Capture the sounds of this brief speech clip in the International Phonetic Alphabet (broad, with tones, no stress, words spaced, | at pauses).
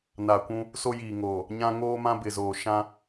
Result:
na˨kʷũ˦ | so˦jiː˨ŋoː˨ | ɲã˦ ŋoː˦mã˦bɪ˨zoː˨ ʃã˦